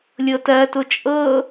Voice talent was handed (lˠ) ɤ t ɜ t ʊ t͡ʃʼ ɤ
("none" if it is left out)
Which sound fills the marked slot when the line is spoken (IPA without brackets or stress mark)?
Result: lʲ